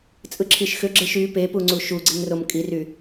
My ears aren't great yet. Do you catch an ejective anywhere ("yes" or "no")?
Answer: yes